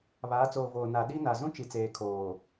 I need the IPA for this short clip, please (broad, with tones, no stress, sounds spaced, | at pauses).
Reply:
β aː˨˦ t͡s oː˨ v oː˨ n a˨ ɗ i˦ n a˨ z ũ˦ t͡ʃ i˨ t͡s eː˨ kʰ oː˨